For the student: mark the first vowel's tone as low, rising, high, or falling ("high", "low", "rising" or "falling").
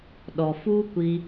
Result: low